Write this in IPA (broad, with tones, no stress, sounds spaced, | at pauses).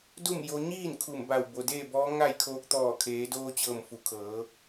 d u˥˨ m j o˧ ɲ iː˥˨ n kʰ u˧˩ m b a˧˩ w b o˩ d eː˥˨ b ɔː˧˥ ŋ a˥˨ j kʰ oː˧ k̚ t̪ ɔː˧˩ kʰ eː˩˧ d oː˧ t͡ɕ ɤː˧˩ m f u˩˧ kʰ ɤː˩˧